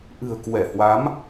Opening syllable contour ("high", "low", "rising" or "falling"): low